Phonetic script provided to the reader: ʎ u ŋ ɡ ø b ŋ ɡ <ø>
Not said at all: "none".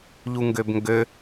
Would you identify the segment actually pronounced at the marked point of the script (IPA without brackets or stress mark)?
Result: ø